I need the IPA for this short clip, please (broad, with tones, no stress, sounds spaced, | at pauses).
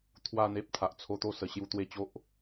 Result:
t̪ʰ w a˥˧ n̪ e˦ p̚ t̪ʰ a˨ ʔ t͡sʰ o˧ t̪ o˥˧ s ə˨˩ ɕ j u˧ t̪ w e˧ t͡ɕ o˦ ʔ